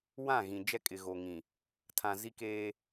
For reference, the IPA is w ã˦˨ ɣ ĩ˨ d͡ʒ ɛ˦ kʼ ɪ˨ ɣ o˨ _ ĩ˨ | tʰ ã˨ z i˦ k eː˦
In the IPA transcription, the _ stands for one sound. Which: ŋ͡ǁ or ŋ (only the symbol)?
ŋ